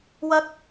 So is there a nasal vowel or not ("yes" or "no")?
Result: no